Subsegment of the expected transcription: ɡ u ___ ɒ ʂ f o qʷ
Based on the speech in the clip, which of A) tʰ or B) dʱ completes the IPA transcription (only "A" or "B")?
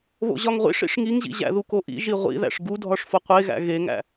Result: B